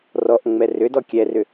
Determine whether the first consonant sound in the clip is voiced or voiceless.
voiced